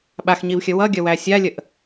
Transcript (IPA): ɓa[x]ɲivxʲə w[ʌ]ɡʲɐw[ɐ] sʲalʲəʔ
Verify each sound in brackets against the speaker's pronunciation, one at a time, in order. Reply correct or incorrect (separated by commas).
correct, correct, incorrect